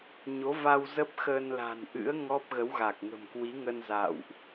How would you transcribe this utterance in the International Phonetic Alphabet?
ɲo˨˦va˧w zə˦˥p̚xəː˧nla̤˨˩nʔɨ̰˧˥ə̯ ŋɔ˦˥p̚ɣə˨˦wɣa˨˩k̚ ŋə̤˨˩m kwi˨˦ŋə˧nza̰ː˧˨wʔ

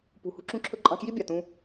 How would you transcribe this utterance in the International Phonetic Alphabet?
pṳ˨hṳ˧ǁũ˧ǁʰɵ˧ ǃʼɑ̃˧kji˦bʲɑ˨tũ˧

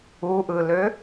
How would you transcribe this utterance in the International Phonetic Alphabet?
uʔɯlø

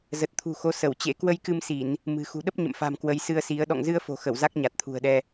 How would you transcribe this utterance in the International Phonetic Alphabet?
zə˨˩t̚t̪ʰṳ˨˩xo˨˦ sə˧˩wt͡ɕḛ˧˥ kwə˧jkɨ˧msi˧˩˨n | mɨ̤˨˩ xṳ˨˩ɗə˦˥p̚ ɲə̰˧˨mfa̤˨˩m kwə˨˦jsɨ˧ə̯si˨˦ə̯ ɗɔ̰˧˨ŋzɨ˧ə̯fo̤˨˩xə˧˩w za˦˥k̚ɲa˨˩t̚t̪ʰṳ˨˩ə̯ɗɛ˧

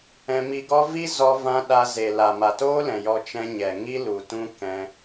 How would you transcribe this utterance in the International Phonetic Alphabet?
ɛ̃˧mi˧ɡɔ˦ vi˦ zɔ˦vã˦ ɗa˧ ze˨ la˨ma˨toː˦lɛ̃˨ jɔ˧ t͡ʃɛ̃˧ɲɛ˨ŋi˦ lu˨tũ˦ kɛ̃˧

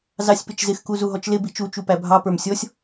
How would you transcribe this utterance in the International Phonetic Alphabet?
zɑsʲpɪt͡ʃzɪx kuzuɦɔt͡ʃlɪ bit͡ʃu t͡ʃupæbʱɑ pə˞msʲɔsʲ

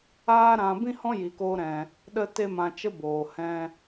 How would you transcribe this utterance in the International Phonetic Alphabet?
aː˦ɾã˧ bĩ˦hɔ̃˦ ji˧koː˦ɾɛ̃˧ | ɗə˧te˧ mã˧t͡ʃə˦ boː˨hɛ̃˧

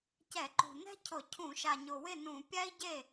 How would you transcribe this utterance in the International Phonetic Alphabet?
cɛ˧˩˧ǃṳ˨˩ nɛ̤˥cʰʊ˧˩˧ cʰũ˧˩˧ʃa˨˩ɲʊ˨˩ wɪ˥˩nũ˧˩˧ pʲa˥i̯ɟe˥˩

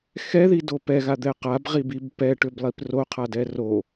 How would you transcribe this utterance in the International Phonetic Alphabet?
xɛðido pɛɣad̪ɛ qabʁibib pɛʈʏblˠip roqʰadɛ ro

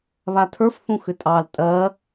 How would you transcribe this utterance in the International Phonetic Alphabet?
βatʰə˞f θũxʏtʼɑl tʼɜ

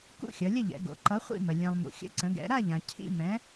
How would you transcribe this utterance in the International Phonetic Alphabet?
kṵ˥˨xʲʌ˩˧lʲə˥˨ ʎɛ̰˩˧ɡo̰˩˧ ǃʌ˨˥χʷḭ˥˨mə˩ lʲɛ̃˩lˠ mṵ˩xʲə̰˨˥ǀə̃˩˧ɡɛ̰˩˧ ɾa˥˨ʎã˩ cʰḭ˥˨mɛ̃˨˥

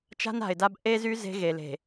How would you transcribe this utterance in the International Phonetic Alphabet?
t͡ʃa̤˦na̤˨ɪ̯da˦b ʔe˦zy˦ ze̤˦ɣe˨le̤˨

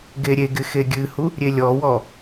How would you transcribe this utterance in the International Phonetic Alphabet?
ɡeɾʲeɡɪ xeɡʲɨhu | ɾʲelʲɔwɔ

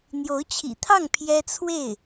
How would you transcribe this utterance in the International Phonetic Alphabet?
n̪jo˧˥ʊ̯t͡ɕʰḭ˨˩t̪ʰɑ˥˩ŋ pʰjɛ˥t͡sʰwe˥˩ɪ̯

